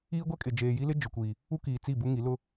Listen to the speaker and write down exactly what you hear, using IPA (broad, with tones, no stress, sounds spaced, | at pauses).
iː˦ ɡʷ ɛ˦ kʼ ɪ˨ d͡ʒ eː˨ j i˦ l ɪ˦ d͡ʒ ʊ˨ kʷ iː˨ | u˦ k iː˨ t͡s i˦˨ b u˦ ŋ i˨˦ l ʊ˦